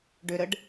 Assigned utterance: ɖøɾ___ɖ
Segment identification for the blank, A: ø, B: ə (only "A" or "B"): B